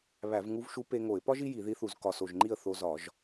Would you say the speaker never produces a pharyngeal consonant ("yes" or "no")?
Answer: yes